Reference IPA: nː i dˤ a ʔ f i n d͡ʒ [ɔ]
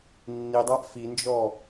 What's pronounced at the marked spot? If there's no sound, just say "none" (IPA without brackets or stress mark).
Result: ɔ